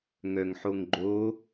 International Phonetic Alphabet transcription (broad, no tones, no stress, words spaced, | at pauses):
ŋœŋħoŋɡ͡ǃo